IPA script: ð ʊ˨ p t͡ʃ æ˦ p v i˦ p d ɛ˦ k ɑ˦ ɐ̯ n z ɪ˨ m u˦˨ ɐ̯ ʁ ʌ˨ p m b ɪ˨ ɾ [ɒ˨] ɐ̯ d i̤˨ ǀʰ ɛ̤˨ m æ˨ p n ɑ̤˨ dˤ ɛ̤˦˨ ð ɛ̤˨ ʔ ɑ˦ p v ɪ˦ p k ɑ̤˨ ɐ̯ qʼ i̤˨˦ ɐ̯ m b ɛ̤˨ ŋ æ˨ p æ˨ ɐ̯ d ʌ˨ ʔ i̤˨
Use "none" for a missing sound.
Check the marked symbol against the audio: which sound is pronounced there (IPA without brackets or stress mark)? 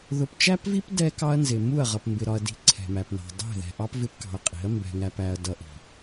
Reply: ɒ˨